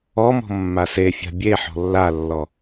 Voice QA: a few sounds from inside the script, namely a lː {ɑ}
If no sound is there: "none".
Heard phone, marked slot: ɔ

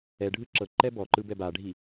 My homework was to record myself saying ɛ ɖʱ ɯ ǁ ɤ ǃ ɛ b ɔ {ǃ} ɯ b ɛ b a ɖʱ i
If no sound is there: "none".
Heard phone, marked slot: ǃ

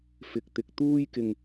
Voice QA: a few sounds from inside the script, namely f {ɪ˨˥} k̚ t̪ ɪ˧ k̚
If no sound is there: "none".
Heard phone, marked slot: ɪ˧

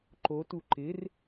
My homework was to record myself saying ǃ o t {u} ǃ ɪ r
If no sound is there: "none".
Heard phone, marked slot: u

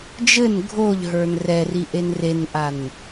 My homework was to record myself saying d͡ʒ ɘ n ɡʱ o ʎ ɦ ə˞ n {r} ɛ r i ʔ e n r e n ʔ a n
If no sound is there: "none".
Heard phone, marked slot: r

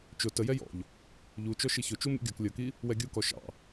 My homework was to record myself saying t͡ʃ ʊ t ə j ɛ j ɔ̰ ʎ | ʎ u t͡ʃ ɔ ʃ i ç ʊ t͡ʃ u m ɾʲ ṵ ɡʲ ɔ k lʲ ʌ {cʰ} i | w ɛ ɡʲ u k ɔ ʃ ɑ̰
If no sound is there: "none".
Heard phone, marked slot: k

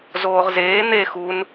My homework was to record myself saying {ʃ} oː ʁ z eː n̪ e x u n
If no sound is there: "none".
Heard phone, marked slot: z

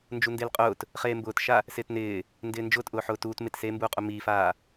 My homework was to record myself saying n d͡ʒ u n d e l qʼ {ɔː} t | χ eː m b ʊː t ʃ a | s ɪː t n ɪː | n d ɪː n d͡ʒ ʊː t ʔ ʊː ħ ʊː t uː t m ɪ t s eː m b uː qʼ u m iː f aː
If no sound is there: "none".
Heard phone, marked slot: ʊː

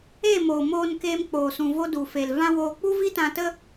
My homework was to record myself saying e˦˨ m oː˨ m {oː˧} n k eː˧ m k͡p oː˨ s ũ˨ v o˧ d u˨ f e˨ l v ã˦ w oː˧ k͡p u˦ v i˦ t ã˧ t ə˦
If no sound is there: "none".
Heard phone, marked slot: oː˧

